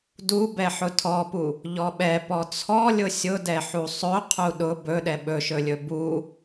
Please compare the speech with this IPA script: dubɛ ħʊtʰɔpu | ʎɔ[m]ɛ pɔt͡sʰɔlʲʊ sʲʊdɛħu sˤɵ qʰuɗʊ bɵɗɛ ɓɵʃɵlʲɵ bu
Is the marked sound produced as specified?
no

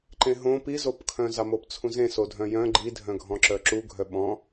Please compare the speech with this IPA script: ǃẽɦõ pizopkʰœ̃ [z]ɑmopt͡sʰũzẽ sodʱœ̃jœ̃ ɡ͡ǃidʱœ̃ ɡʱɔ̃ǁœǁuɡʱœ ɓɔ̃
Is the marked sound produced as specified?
yes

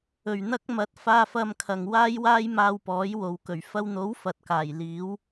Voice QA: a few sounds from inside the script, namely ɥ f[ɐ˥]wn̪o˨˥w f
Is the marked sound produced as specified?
no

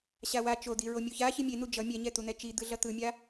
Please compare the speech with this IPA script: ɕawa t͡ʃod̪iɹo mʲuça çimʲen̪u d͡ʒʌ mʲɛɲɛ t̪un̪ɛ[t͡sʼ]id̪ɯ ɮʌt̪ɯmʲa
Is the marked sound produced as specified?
no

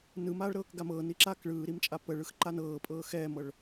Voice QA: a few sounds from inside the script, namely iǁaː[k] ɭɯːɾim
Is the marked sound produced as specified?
yes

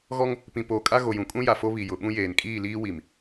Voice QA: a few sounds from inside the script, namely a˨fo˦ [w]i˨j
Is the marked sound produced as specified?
no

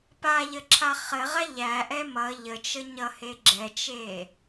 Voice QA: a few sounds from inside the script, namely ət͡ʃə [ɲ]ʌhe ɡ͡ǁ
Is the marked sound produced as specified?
yes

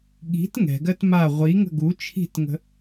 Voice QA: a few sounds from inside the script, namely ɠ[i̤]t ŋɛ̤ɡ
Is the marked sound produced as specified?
yes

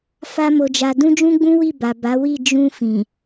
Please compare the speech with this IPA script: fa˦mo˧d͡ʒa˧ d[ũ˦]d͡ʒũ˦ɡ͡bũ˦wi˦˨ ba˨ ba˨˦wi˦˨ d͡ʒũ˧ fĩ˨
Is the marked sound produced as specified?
yes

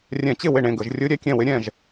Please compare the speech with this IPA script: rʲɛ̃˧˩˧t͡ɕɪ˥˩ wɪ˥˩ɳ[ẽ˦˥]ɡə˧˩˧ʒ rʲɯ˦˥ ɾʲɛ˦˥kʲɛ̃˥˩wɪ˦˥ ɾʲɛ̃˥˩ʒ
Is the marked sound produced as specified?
no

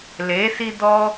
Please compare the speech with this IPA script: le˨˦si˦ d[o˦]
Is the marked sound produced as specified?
no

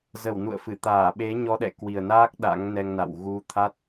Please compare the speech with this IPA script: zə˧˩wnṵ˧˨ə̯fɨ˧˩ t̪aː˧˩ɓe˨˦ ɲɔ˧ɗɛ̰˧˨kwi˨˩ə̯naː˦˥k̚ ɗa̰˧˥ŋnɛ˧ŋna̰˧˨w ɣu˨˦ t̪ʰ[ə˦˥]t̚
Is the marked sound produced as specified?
no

